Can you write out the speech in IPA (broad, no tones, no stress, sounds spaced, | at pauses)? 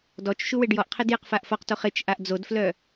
d ɔ t͡ʃ ʃ u w e ɖ j ɔ ʔ qʰ e d j ɪ q f a ʔ f ɔ q t o χ ɪ t͡ʃ ʔ a ʔ d͡z o d f l œ